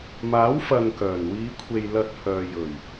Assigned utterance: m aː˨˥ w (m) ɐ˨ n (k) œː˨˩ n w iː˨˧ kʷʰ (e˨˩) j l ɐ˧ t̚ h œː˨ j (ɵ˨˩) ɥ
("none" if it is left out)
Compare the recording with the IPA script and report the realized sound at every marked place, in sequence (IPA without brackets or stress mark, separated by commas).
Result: f, k, e˨, ɵ˨˩